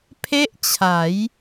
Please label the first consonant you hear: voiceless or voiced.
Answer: voiceless